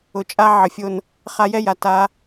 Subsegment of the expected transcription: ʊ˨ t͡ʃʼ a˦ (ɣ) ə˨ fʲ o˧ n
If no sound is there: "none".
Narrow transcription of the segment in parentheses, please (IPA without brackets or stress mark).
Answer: ʕ